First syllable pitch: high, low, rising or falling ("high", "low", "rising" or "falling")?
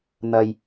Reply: low